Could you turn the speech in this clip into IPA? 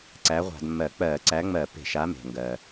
ǀ æ˨˥ ʁʷ a̤˧˩˧ d mː ɜ˧˩˧ k͡p ɜː˧˩˧ ǀ æ˨˥ ŋ͡m ɜ˧˩˧ p e̤˧˩˧ ʃ a˨˥ m e̤˩ ŋ ɡ ɜː˩

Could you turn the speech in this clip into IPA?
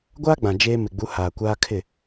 ɡʷ aː˦ ɡ͡b ã˨ d͡ʒ eː˦ m ɪ˨ ɡ͡b u˨˦ h aː˨ kʷ aː˦ kʰ ɪ˦˨

